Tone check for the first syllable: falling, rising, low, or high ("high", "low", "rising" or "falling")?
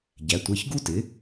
rising